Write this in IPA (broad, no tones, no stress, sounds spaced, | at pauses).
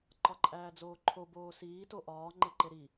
ǃ ɒ ǃʼ æː d͡z oː ǃʰ o b oː s iː t o ʔ ɒː ŋ͡ǃ e ǃ e ɾ i